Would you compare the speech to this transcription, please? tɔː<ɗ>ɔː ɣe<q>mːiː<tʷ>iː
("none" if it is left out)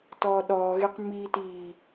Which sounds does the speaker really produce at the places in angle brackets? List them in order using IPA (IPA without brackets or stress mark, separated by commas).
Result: ɗ, q, t